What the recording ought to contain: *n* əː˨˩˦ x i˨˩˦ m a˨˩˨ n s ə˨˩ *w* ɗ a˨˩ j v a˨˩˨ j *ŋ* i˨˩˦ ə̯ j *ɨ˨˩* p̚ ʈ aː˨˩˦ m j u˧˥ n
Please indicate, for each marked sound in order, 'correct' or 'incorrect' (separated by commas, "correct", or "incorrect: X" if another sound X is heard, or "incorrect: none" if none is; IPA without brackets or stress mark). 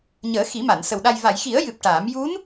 incorrect: ɲ, correct, incorrect: x, correct